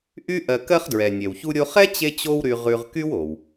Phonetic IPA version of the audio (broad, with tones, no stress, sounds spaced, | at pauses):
ʔ y˥ ʔ ɜ˧ k ɜ˥ χ d ɹ ɛ˩ nʲ ɛ˩ w ç u˧ ɾʲ o˧ χ ɛ˥ t͡ɕ e˥ t͡ɕ o˥ w ɾ y˧ ʁ ʉ˧ ʁ k y˥ w o˩ w